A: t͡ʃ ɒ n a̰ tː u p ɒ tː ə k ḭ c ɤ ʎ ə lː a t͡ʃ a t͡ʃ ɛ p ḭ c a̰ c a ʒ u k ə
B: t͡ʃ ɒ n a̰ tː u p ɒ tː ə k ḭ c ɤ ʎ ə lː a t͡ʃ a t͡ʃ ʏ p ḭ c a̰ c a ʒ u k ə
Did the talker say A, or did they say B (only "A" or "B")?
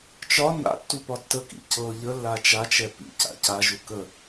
A